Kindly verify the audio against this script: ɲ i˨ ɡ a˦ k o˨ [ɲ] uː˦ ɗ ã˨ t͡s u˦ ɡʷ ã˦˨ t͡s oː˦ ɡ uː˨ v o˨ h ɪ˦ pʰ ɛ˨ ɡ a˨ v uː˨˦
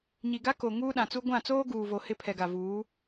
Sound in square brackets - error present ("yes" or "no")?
yes